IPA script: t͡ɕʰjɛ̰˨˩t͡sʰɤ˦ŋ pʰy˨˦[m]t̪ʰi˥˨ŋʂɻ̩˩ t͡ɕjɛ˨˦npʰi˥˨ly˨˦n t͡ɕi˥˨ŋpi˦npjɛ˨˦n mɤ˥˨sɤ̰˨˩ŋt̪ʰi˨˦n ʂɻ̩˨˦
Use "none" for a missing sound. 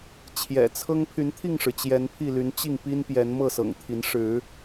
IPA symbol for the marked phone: n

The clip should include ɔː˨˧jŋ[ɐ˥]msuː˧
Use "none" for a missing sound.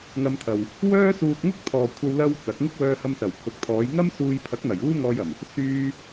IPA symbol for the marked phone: ɐ˥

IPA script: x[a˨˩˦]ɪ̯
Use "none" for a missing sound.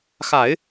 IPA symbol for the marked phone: a˨˩˦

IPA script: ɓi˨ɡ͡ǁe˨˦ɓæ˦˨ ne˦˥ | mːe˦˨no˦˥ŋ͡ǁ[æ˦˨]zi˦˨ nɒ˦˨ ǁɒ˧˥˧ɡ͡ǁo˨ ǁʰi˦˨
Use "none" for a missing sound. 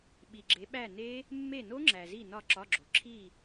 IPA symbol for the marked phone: æ˨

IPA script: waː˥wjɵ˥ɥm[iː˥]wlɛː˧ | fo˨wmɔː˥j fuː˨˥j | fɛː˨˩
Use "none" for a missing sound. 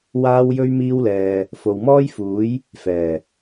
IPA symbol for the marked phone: iː˥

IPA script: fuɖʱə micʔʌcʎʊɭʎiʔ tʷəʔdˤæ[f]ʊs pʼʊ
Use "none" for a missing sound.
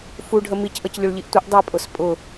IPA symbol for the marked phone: pʼ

